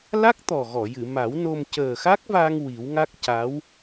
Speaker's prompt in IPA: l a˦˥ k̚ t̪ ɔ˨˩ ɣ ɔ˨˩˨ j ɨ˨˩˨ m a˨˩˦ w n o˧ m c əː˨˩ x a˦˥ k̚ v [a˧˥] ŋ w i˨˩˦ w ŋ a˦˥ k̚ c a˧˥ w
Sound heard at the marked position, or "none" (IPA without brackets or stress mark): a˧